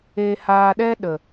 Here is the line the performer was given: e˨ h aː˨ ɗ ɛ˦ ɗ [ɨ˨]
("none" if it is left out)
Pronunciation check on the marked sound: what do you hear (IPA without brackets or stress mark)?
ə˨